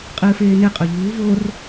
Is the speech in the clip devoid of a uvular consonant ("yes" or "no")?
no